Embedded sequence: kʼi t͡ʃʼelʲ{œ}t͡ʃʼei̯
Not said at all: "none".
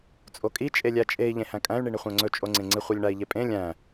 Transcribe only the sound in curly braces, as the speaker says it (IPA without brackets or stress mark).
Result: æ